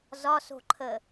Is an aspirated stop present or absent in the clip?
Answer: present